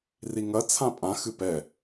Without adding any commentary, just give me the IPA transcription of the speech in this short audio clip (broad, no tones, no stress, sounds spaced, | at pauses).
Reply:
r i ŋ ɐ t͡sʰ ã pʼ ã x ɨ p ɛ